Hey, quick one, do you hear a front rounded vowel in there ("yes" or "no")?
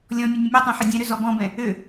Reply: yes